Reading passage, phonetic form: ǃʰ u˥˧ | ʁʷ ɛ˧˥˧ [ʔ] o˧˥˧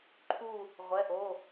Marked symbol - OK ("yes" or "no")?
yes